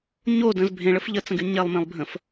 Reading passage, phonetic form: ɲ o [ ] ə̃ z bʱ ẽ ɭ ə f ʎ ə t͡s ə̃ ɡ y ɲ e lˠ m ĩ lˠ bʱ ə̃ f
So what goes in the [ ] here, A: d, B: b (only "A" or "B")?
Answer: A